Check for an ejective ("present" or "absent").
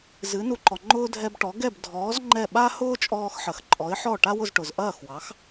present